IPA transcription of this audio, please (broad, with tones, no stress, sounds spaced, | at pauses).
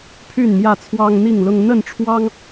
pʰ y˥˨ n m j ä˥˨ t͡sʰ w ɑ˦ ŋ n̪ i˥˨ ŋ l ʊ˦ ŋ n̪ ə˥˨ n ʈ͡ʂʰ w ɑ˦ ŋ